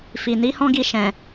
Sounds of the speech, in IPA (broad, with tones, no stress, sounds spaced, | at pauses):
f i˨ n i˨˦ h ɔ̃˦ ɡ i˧ ʃ ɛ̃˨